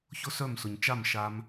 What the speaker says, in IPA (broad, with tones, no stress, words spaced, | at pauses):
çʊ˦sœ˦˨msʊ˨ɲ t͡ʃa˦˨mʃa˧m